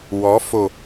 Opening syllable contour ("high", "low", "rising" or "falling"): rising